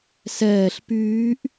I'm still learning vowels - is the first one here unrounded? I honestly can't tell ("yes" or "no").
yes